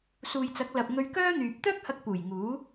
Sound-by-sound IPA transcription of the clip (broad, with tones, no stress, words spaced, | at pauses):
suː˨jt͡sɐ˨˥k̚lɐ˨p̚ ŋɵ˧ɥkœː˥n̪yː˨p̚ t̪œː˥k̚hɐ˧k̚ puː˨˩jŋuː˨˥